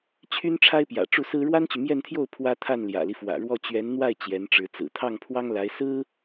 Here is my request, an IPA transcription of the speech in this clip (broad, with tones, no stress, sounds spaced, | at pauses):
t͡ɕʰ y˥ n ʈ͡ʂʰ a˥ ɪ̯ p j ä̰˨˩ ʈ͡ʂ u˥˩ s ɹ̩˥ ɻ w a˥ n t͡ɕ y˨ m j ɛ˥˧ n t̪ʰ j o˥˩ ʊ̯ pʰ w ä˥ t̪ʰ a˥˩ n l j ä̰˨˩ l i˦ f w ä̰˨˩ ɻ w ɔ˥˩ t͡ɕ ɥ ɛ˧˥ n n̪ w a˥˩ ɪ̯ t͡ɕ j ɛ˧˥ n ʈ͡ʂ ɻ̩˧˥ t͡s ɹ̩˨˩ t̪ʰ ɑ˥˩ ŋ pʰ w ɑ˥ ŋ l a˧˥ ɪ̯ s ɹ̩˥